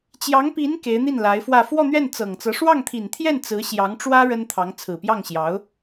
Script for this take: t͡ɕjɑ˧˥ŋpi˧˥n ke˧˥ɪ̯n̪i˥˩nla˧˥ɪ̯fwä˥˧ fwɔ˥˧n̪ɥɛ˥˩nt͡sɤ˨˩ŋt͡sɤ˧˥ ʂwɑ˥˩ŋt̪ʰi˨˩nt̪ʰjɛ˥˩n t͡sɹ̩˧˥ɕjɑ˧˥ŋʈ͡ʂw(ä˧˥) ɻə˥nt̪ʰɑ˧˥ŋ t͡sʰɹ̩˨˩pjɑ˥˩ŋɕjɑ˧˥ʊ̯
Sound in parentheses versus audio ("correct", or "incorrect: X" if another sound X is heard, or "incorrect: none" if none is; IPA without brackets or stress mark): incorrect: ä˥